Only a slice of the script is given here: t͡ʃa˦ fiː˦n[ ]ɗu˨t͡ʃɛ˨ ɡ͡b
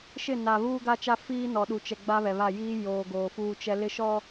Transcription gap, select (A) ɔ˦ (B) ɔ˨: B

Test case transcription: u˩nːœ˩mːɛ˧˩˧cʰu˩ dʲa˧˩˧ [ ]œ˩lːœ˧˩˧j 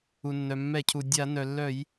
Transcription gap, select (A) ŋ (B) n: B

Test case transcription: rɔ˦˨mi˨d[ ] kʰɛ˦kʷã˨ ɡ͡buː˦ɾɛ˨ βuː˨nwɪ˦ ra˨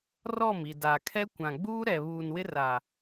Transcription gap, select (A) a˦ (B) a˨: B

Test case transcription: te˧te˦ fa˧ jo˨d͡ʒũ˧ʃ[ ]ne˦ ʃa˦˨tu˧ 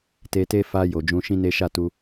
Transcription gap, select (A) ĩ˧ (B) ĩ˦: B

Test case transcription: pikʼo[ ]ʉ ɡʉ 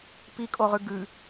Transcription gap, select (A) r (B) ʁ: B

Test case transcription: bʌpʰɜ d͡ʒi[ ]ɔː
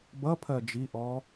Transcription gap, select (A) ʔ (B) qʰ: A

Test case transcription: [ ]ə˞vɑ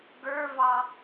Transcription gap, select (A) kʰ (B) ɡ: B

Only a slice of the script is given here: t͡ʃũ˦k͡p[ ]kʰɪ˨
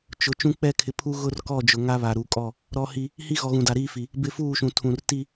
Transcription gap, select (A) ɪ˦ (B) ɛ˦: B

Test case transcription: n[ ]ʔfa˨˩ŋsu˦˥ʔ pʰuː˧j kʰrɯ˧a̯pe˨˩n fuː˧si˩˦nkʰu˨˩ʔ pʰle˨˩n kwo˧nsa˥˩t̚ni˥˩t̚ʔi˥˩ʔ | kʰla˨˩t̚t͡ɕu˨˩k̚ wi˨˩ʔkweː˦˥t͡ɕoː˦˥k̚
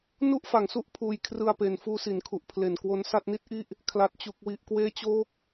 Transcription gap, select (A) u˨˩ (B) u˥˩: B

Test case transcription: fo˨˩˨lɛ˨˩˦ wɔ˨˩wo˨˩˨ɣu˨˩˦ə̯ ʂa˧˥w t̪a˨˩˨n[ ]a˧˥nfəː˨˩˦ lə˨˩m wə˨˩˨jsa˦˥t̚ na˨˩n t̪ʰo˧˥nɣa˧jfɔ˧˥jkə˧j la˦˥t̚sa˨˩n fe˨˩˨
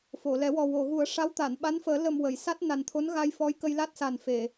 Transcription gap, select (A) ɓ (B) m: A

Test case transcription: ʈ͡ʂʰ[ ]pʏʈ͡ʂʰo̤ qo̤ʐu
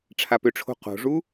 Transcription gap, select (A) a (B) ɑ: A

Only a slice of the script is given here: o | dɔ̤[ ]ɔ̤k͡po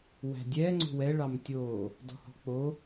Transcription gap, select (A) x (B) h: B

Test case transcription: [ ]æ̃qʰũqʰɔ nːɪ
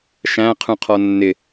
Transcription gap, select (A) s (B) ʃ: B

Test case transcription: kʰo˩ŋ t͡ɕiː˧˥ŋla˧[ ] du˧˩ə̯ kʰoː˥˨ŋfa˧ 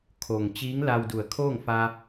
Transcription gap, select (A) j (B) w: B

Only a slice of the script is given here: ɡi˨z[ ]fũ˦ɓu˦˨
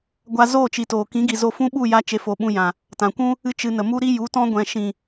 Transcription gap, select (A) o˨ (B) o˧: B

